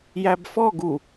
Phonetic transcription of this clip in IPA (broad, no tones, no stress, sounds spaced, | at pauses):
j æ b f ɔ ɡ u